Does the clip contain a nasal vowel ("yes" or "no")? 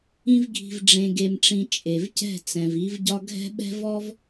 yes